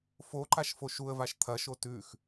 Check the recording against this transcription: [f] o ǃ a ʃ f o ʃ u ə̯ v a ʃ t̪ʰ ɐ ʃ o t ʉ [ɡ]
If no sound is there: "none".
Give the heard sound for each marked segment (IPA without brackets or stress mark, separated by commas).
f, x